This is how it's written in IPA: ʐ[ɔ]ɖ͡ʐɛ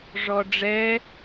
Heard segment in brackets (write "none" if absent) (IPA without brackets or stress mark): ɔ